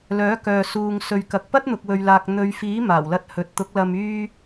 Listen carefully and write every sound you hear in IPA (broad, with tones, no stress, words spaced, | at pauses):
lœː˨˥ kœː˨ suː˨ŋ sɵ˧ɥkɐ˧k̚ pɐ˥t̚n̪ʊ˨k̚wɵ˨ɥlaː˨k̚ n̪ɵ˨˧ɥfiː˨˥ maː˨˩wlɐ˧t̚hɵ˨t̚t̪ʊ˨˥k̚ lɐ˨myː˧